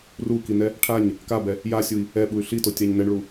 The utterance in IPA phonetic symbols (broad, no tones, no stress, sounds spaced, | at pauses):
r u k i n ɛ | ʈʰ a ɲ | k a b ɛ | j a sʲ u i̯ | ɛ ɓ u y̯ ɬ i t o tʲ a ɲ n ɛ ɳ ɭ u